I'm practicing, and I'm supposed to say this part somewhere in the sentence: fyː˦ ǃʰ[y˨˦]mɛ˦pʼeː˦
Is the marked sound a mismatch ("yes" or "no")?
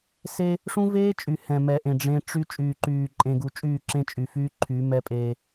no